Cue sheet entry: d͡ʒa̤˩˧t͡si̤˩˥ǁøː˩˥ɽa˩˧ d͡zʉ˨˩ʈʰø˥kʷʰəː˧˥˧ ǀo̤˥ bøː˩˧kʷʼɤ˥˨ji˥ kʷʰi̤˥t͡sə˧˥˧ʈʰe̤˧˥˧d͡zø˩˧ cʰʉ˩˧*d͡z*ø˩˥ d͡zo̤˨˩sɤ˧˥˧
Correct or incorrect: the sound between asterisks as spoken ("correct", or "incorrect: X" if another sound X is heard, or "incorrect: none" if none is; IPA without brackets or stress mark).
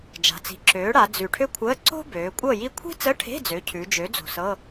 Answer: incorrect: d͡ʒ